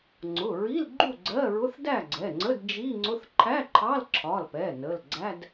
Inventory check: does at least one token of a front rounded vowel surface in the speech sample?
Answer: no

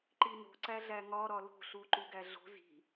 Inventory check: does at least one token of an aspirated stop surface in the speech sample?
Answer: no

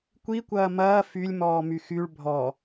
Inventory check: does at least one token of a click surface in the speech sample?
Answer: no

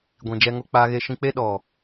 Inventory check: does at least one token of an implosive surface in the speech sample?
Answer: yes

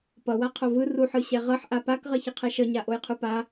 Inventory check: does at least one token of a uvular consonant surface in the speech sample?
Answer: yes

